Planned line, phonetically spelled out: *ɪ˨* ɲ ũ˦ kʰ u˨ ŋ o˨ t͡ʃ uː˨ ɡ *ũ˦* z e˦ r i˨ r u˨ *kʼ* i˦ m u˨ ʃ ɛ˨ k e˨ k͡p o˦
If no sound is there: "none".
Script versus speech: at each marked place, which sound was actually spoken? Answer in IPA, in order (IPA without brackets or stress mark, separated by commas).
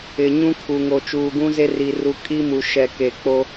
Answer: ɪ˨, ũ˦, kʼ